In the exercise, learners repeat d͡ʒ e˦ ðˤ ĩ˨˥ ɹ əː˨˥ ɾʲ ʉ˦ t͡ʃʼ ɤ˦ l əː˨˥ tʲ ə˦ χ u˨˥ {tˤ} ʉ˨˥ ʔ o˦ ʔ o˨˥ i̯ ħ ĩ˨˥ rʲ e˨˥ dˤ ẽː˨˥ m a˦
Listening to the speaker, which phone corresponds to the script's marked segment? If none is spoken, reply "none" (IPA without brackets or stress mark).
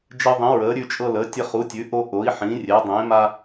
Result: tʲ